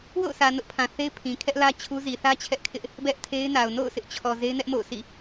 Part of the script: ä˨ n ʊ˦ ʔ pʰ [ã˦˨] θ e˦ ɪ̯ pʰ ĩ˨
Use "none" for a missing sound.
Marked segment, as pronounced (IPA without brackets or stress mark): ã˨